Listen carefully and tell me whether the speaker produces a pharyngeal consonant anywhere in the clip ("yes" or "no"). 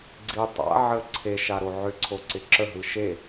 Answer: yes